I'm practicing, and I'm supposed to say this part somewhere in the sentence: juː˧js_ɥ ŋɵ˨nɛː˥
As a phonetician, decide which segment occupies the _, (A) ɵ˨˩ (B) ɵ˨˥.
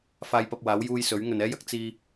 B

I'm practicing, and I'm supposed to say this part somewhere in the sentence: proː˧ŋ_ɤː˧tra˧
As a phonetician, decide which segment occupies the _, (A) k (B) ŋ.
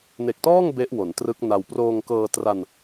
A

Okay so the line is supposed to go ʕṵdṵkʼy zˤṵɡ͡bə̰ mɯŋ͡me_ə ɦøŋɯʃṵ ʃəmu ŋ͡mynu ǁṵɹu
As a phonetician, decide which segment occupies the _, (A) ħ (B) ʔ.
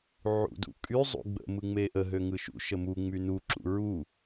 B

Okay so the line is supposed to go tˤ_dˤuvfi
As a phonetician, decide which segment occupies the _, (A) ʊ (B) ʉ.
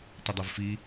A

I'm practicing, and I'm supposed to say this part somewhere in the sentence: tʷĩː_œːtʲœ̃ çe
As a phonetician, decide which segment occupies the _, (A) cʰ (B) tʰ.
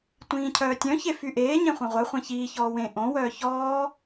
A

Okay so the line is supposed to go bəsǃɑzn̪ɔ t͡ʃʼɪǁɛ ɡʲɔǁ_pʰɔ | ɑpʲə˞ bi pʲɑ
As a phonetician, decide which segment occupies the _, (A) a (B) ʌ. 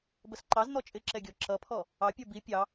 B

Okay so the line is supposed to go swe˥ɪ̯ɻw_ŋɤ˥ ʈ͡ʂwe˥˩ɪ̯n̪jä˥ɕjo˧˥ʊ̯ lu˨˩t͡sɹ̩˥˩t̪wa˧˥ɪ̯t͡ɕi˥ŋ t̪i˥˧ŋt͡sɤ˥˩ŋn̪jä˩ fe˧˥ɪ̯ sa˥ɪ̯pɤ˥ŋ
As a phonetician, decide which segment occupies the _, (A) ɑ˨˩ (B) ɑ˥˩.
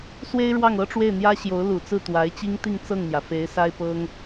B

